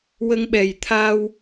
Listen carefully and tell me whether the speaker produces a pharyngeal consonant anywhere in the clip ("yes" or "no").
no